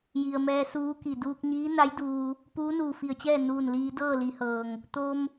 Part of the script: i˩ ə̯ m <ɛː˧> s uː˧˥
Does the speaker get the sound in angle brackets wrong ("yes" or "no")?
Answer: no